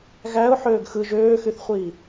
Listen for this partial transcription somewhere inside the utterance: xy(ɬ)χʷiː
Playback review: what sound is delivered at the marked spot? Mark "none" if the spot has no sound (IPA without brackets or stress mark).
θ